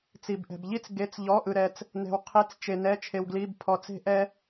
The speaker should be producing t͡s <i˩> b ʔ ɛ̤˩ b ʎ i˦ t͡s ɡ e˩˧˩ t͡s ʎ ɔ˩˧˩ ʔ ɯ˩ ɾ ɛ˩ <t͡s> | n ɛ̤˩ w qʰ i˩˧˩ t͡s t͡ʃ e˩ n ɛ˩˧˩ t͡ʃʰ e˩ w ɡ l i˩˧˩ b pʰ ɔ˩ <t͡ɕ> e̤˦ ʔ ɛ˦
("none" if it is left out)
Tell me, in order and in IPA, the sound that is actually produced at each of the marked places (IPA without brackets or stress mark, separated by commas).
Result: i˩, t͡s, t͡s